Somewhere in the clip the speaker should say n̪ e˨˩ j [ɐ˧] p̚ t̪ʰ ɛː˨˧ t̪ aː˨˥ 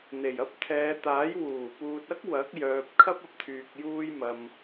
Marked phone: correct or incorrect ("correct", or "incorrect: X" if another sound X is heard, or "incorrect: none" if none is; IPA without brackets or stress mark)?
incorrect: ɐ˥